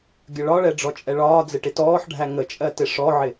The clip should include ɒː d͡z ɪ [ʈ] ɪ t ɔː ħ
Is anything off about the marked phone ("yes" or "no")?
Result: no